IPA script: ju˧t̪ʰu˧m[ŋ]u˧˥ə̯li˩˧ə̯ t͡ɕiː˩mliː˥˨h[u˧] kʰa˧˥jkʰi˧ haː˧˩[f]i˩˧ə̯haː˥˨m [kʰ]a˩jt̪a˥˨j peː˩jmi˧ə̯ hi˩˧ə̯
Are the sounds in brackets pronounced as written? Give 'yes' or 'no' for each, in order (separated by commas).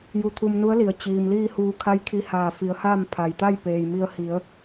no, no, yes, no